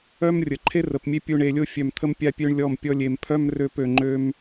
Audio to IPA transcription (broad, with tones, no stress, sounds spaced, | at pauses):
œ˦ m rʲ ə˨ ǃʰ e˦ r ə˨ p mʲ e˦ pʲ u˧ ɳ e˧ lʲ o˦ fʲ œ˧ m t̪ʰ ə˦ m pʲ a˦ pʲ ø˦ ɳ lʲ ɔ˦˨ m pʲ ɔ˦ lʲ e˧ m pʰ œ˦ m r ø˧ p ø˨ ŋ͡ǃ ø˧ m